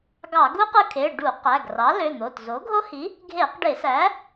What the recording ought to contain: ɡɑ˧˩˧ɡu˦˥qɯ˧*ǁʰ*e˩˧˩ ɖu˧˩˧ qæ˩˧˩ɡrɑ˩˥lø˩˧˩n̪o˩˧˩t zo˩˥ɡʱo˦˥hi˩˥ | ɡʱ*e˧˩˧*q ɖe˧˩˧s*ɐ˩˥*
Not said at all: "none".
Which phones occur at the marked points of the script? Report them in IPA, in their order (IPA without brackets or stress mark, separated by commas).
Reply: kʰ, e˧˩˧, æ˩˥